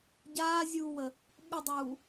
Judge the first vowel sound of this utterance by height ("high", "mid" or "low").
low